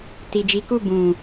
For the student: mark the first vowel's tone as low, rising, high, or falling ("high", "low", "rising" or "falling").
low